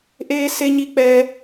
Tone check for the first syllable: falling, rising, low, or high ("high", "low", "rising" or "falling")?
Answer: high